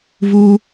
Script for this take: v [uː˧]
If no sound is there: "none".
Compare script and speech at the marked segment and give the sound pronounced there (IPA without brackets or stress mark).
uː˧